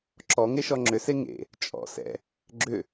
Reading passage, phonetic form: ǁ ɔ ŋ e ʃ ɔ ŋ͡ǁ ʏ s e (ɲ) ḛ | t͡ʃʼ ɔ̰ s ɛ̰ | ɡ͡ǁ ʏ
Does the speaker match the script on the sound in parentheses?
no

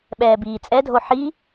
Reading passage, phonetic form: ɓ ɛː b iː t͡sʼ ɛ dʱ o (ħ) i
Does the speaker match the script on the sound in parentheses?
yes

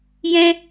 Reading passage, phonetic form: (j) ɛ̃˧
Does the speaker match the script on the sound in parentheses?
yes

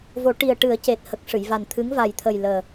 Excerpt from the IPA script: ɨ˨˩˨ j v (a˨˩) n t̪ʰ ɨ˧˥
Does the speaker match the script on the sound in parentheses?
yes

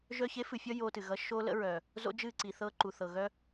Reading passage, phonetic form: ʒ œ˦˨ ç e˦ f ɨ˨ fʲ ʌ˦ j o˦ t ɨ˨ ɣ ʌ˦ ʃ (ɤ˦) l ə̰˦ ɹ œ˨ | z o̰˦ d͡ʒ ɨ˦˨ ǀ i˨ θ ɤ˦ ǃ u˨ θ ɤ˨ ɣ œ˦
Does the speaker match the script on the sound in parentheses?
no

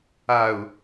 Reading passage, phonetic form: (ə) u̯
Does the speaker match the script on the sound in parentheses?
no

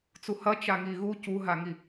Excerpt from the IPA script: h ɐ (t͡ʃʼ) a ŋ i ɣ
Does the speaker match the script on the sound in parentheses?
no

